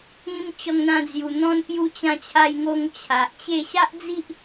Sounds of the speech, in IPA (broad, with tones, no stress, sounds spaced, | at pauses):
ĩ˧ m t͡ɕ ɔ˧ ŋ n̪ ã˧ d͡z j u˨˩ n̪ ɔ̃˧ n p j u˧ t͡ɕ ã˧ t͡ɕʰ a˧ j ŋ o˧ ŋ t͡ɕʰ a˨ ʔ t͡ɕ e˥˧ ɕ a˦ ʔ d͡z i˦ ʔ